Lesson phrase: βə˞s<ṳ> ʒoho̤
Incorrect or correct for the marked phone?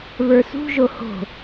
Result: correct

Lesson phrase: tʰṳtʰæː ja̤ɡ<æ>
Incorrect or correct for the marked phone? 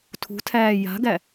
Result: correct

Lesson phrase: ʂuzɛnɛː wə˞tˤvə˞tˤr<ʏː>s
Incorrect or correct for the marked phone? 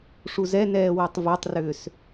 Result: correct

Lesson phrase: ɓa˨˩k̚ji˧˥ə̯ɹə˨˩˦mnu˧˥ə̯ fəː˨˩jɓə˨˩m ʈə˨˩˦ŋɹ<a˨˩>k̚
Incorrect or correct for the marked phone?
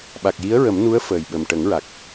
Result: correct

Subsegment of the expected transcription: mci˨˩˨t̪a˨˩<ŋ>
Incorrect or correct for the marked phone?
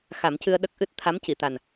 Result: incorrect: n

